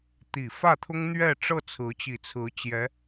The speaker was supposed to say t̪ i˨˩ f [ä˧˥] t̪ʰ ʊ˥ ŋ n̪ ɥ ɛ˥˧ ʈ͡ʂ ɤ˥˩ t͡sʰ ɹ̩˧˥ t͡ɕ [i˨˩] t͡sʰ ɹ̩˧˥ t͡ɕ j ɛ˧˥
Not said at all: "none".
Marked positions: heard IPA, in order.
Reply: ä˥˩, i˨˩

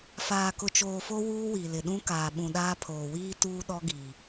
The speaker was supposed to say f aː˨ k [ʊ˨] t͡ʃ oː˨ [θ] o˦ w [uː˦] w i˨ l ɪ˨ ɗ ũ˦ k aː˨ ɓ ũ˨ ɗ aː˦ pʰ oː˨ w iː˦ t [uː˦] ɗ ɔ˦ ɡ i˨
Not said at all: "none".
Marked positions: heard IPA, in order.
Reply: ʊ˨, f, uː˦, uː˦

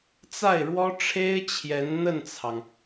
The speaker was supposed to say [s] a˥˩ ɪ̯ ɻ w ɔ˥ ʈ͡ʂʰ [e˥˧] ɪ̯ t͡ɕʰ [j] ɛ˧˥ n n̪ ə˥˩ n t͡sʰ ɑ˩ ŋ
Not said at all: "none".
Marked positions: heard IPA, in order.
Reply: t͡s, e˥, j

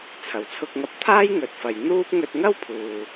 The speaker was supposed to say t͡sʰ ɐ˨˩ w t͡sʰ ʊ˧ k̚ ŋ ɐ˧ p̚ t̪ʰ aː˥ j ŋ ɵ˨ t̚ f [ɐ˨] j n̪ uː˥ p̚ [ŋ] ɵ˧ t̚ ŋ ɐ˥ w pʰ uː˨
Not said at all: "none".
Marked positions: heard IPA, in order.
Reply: ɐ˨, ŋ

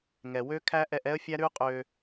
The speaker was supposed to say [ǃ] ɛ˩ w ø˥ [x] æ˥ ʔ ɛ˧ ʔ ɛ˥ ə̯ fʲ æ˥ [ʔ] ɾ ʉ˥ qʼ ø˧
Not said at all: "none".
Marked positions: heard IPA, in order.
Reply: ŋ, kʰ, none

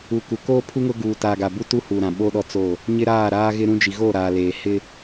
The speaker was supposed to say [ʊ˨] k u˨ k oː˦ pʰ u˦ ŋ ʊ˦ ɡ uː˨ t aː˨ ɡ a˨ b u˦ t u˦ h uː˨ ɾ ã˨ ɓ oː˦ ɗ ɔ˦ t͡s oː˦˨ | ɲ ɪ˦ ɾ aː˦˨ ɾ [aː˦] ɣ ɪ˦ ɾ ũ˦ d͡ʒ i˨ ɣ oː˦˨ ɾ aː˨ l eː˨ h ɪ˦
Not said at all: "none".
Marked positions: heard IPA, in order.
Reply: u˨, aː˦

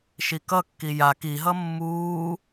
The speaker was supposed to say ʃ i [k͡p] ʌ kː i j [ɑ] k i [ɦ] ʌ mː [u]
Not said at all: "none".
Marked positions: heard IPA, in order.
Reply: k, a, ɦ, uː

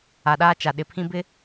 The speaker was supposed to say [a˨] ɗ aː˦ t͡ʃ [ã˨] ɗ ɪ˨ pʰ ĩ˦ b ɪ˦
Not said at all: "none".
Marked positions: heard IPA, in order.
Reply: a˨, a˨

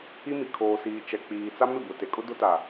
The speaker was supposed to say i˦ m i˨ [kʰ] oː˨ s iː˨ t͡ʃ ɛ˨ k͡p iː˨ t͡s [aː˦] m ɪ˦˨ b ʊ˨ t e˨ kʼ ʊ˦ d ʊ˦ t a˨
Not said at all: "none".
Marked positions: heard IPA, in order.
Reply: kʰ, a˦

